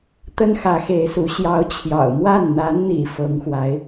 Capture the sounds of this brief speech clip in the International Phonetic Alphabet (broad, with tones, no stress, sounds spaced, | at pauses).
t̪ ə˥ n x ä˧˥ x e˧˥ ɪ̯ s u˧˥ ɕ j ɑ˧˥ ʊ̯ t͡ɕʰ j ɑ̰˨˩ ʊ̯ m w a˥˩ n n̪ a˧˥ n n̪ ḭ˨˩ f ɤ˧˥ ŋ x w a˧˥ ɪ̯